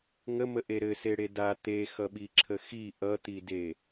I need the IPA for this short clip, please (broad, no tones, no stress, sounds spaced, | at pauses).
ŋ ə m ə ʔ e ɾ ɘ s e ɽ e d a t̪ e x ʌ ɓ i ǁʰ ə x i ʔ ʌ t̪ i d e